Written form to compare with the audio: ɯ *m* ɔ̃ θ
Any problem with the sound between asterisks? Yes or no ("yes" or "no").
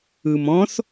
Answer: no